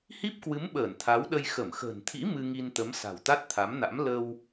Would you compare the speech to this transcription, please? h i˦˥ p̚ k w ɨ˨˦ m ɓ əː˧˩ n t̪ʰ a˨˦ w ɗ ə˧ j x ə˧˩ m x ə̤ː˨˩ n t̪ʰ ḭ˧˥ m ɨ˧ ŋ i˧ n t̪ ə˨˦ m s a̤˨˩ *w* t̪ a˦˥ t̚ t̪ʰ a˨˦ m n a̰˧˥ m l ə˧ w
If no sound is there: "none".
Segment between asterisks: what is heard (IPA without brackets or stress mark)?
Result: w